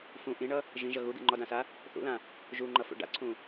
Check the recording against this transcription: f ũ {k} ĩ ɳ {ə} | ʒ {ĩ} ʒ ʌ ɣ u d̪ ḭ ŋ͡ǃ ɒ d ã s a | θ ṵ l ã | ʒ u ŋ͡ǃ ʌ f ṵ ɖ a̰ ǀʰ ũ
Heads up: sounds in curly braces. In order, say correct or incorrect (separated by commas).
incorrect, incorrect, correct